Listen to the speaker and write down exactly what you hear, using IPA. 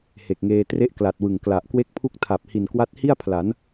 h e˨˩ k̚ ŋ eː˧ t r e˥˩ ʔ k l a˨˩ t̚ w ɯ˨˩ ŋ k l a˨˩ ʔ k w e˥˩ k̚ pʰ u˥˩ k̚ tʰ a˨˩ p̚ h i˨˩ n k w a˦˥ t̚ h i˥˩ a̯ pʰ l a˩˦ n

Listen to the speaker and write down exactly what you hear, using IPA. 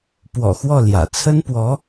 p w ɔ̰˨˩ x w ɔ˥˩ l j ä̰˨˩ t͡sʰ ə˥ n p w ɔ˧˥

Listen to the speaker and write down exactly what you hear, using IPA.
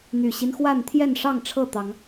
n̪ y˨˩ ɕ i˦ n x w a˥˨ n t̪ʰ j ɛ˥˨ n ʂ ɑ˥˨ ŋ ʈ͡ʂʰ ɤ˥˨ t̪ ɑ˨˦ ŋ

